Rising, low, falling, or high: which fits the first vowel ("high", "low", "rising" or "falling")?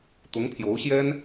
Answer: rising